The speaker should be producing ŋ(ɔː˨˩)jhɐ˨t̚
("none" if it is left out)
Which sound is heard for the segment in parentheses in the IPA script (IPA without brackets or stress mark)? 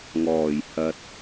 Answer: ɔː˨˩